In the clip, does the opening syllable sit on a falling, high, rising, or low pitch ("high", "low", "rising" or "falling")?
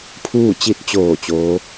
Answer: falling